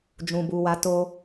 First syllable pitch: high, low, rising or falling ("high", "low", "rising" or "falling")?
low